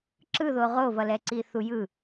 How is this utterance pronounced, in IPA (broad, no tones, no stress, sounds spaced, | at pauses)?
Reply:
ǁ ɯ ð o ʁ o v ʌ l ɛ ǀ i θ u j ɯ